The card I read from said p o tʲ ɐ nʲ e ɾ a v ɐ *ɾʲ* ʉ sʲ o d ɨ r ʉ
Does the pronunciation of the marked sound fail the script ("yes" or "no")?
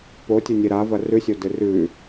yes